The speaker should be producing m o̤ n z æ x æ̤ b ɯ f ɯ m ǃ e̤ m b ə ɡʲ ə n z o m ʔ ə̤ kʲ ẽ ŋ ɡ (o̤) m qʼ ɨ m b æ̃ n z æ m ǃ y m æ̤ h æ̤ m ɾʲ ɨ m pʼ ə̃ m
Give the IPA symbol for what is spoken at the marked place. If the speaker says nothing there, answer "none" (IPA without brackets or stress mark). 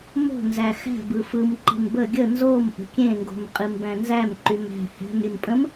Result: o̤